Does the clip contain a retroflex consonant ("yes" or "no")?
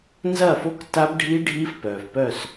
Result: yes